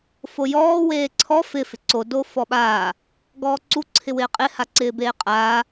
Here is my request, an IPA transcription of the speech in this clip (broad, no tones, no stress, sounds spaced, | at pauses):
f o j ɔː w eː ǀʰ ɔ f ɪ f ɪ ǀ o d o f ɔ ɓ aː | ɡ ɔː ǀ u ǀʰ ɪ w ɪː qʼ ɪ h a ǀ ɪː b eː qʼ aː